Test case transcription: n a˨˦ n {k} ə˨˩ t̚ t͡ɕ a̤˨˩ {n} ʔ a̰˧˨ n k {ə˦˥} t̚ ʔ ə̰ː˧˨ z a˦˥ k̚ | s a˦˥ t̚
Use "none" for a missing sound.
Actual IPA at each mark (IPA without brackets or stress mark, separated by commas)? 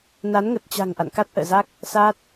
ŋ, ŋ, a˦˥